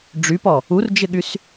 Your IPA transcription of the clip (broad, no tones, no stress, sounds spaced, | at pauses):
ɖ͡ʐ y p ɔ | u r d͡ʒ ɪ ɠ y s